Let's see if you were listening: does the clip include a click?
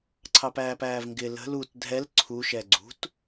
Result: yes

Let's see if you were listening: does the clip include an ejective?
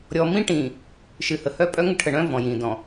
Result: yes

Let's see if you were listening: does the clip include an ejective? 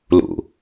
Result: no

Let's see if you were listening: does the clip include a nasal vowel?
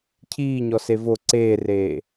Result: no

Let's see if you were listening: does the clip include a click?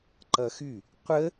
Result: yes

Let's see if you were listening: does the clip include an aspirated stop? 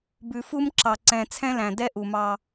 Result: yes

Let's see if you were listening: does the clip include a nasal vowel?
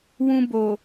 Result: yes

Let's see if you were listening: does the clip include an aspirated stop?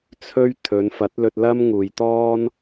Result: yes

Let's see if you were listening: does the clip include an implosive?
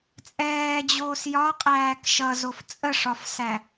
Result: no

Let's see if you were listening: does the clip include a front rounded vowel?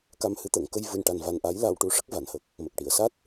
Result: no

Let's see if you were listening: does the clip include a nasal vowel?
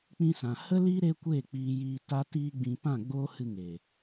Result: yes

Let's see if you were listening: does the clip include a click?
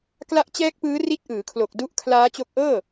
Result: no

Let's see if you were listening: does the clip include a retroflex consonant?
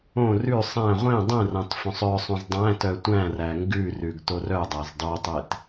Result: no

